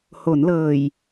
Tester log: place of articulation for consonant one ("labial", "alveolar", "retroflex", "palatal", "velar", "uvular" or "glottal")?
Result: glottal